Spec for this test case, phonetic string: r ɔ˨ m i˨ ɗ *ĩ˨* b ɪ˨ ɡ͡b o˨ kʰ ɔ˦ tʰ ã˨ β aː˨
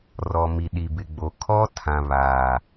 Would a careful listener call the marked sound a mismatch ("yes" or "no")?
yes